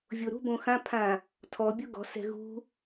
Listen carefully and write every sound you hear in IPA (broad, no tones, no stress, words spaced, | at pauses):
vʲoɾṳbõ xãpʰã | tʰɔbʲu ɡɔ̤sɛ̤ ɣṳ